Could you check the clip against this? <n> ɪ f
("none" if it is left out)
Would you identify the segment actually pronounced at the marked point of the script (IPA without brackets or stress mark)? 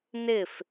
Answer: n